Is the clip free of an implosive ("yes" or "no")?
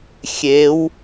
yes